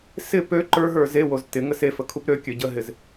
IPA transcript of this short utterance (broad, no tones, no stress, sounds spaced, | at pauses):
s ɪ p ø ǃ ə˞ ɦ ə˞ z e w o z t ɪ ŋ ə s e f ə kʰ u p ɾ ø kʲ ø ɟ ə ɦ ɪ z